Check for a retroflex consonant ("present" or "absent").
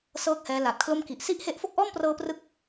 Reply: absent